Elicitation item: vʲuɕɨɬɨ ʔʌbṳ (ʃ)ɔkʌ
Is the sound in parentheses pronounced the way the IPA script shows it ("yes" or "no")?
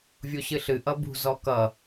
no